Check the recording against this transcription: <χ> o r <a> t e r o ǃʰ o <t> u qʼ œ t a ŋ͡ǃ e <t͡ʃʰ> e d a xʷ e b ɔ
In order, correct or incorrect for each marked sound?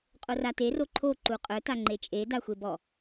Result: incorrect: qʼ, correct, incorrect: ǃ, incorrect: t͡ʃʼ

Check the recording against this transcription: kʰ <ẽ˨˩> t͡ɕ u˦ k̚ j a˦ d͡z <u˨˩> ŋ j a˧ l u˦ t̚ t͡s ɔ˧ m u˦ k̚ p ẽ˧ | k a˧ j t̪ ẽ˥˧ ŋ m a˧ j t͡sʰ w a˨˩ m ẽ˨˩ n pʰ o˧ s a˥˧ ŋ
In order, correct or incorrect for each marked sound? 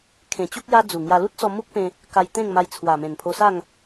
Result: correct, correct

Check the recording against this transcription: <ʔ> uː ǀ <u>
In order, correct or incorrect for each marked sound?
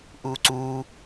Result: correct, incorrect: uː

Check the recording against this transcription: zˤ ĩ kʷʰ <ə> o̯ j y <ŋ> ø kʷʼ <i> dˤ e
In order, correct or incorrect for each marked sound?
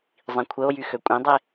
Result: correct, incorrect: x, incorrect: ĩ

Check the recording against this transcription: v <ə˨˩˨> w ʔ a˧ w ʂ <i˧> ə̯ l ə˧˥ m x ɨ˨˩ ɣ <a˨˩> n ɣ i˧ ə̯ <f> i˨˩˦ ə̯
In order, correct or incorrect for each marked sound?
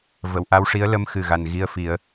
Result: correct, incorrect: i˧˥, correct, correct

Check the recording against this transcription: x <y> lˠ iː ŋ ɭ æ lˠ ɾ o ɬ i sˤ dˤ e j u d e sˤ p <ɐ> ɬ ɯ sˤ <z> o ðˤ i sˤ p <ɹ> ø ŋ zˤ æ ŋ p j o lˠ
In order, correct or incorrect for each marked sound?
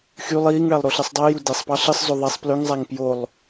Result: correct, incorrect: ɑ, correct, incorrect: l

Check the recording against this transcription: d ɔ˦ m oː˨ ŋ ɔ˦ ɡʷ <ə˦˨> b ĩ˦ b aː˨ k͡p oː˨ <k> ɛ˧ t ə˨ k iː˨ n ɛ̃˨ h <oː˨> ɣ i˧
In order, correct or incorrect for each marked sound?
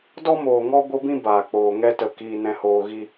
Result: incorrect: ə˦, incorrect: ŋ, correct

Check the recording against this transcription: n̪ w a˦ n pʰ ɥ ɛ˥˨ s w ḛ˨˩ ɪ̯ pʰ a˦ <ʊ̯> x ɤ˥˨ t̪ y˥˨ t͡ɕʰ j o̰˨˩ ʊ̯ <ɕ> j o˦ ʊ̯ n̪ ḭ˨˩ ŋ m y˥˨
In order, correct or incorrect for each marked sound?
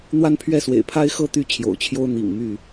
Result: incorrect: ɪ̯, incorrect: t͡ɕʰ

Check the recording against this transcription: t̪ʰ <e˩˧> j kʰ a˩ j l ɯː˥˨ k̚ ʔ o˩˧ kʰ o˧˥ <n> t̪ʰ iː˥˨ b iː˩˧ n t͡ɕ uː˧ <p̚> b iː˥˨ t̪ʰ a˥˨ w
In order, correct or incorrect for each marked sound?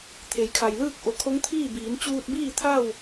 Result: correct, incorrect: ŋ, incorrect: t̚

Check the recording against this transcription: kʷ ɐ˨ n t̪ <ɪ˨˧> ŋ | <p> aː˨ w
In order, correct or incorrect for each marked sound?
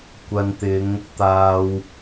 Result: correct, incorrect: t̪

